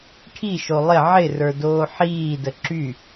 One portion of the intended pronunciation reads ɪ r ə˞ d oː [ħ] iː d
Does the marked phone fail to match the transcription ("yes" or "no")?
no